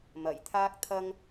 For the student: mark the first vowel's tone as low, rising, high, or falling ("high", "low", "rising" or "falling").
low